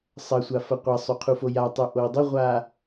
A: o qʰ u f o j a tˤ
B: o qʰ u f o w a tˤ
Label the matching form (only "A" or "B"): A